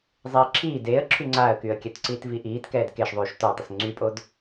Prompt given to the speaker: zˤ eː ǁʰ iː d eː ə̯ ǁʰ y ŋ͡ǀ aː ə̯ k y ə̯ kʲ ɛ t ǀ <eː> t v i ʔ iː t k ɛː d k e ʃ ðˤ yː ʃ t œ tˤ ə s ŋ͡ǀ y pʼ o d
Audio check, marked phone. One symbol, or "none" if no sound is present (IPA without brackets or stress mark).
iː